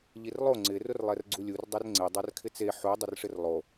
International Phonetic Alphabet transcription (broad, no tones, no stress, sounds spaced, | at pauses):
ʎ i r lˠ o ŋ͡ǀ ɪ r ʊ r lˠ ɛ r ɡ͡ǀ u lʲ u r dˤ ɛ r ŋ͡ǀ e dˤ a r kʰ ɪ t͡s e ħ u dˤ ʊ r ʂ ɪ r lˠ o